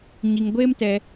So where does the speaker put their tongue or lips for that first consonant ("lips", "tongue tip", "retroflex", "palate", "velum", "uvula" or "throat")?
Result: palate